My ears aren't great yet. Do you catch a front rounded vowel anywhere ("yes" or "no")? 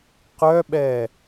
yes